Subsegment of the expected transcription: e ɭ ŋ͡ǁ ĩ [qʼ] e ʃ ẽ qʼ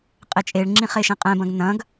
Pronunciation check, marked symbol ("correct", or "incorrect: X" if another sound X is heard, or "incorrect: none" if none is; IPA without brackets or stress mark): incorrect: χ